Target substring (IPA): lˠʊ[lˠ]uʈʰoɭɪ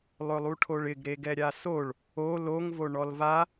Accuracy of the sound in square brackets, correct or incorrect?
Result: correct